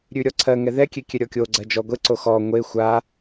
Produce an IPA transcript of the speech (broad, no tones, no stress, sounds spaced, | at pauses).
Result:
ɾʲ ʉ ɾʲ ɔ ǀʰ ɜ ŋ ɛ ð ɛ kʲ e kʲ ɛ ɾʲ ɔ kʲ o ɡ͡ǀ ɜ d͡ʒ ɔ ɡʷ e ǀ o x ɔ ŋʷ e xʷ a